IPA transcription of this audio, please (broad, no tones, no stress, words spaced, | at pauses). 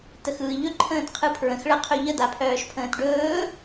təxɯːʎɵ ǃʰə̃ːtqʰɯpʰɹə̃x ɭəqʰɵʎə d̪apʰœːʃpʰə̃ːtɖɵː